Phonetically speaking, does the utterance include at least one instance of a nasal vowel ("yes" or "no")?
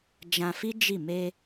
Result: yes